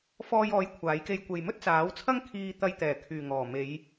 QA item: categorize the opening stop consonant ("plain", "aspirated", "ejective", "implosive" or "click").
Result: aspirated